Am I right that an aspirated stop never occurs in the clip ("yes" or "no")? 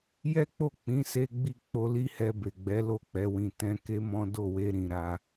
yes